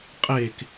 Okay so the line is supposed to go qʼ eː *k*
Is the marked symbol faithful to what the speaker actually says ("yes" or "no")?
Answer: yes